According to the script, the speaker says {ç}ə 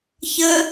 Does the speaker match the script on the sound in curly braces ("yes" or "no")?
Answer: yes